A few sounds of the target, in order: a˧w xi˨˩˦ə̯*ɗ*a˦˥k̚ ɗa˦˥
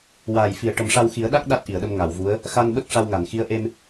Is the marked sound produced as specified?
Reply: yes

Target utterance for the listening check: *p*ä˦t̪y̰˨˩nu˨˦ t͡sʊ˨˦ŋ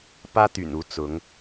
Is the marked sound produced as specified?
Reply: yes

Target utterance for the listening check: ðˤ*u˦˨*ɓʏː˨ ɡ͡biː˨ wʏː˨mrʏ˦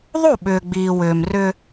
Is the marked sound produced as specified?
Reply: yes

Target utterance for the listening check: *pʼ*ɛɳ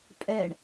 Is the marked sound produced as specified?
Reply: yes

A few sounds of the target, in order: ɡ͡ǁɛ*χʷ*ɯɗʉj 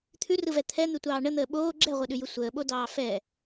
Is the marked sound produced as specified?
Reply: no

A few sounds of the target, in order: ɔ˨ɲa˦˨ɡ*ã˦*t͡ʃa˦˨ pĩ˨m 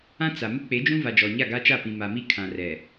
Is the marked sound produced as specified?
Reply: no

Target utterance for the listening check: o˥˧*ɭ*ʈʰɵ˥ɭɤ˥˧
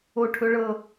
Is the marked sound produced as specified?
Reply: no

